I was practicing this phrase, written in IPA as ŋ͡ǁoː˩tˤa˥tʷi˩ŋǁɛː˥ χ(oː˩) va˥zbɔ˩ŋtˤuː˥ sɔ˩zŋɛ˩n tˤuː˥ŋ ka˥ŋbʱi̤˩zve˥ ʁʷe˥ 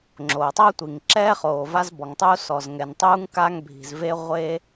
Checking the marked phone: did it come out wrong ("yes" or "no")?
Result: no